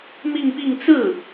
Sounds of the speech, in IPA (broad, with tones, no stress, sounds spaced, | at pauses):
m i˥˧ ŋ p i˥˧ ŋ t͡s ɹ̩˥˩